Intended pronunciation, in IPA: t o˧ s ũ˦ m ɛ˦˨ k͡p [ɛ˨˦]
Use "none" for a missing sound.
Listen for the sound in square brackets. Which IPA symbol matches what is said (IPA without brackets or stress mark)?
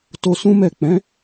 ɛ̃˨˦